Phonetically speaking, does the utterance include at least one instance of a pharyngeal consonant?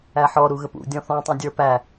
yes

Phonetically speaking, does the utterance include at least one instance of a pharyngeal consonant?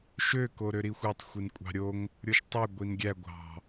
no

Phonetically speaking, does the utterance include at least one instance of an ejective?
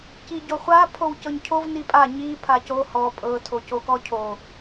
yes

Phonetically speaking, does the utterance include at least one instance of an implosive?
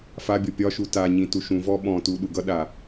yes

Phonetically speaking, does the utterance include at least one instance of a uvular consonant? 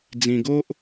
no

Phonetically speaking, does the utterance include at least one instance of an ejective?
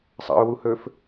no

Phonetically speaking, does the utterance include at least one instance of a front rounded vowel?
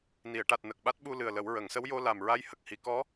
no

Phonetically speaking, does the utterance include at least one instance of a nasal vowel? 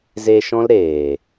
yes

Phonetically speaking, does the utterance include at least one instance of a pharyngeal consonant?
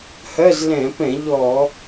no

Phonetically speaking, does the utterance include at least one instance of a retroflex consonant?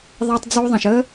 no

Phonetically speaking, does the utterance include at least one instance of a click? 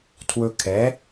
no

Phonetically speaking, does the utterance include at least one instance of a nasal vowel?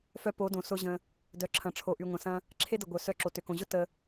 yes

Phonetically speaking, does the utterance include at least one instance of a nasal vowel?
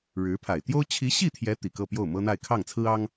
no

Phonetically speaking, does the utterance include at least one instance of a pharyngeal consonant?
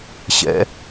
no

